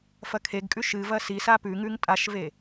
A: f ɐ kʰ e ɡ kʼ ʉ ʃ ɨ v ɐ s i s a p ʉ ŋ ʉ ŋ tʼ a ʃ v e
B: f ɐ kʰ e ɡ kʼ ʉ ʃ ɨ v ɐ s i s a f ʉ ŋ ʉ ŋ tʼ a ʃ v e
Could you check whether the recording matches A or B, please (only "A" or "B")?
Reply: A